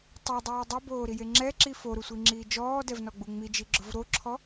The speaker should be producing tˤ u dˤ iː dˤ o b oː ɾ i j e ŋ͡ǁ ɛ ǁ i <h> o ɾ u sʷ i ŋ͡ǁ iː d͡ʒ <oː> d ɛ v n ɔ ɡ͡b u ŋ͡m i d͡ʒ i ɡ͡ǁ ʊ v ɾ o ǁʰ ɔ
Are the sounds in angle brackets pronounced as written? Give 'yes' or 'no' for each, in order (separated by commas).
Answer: no, no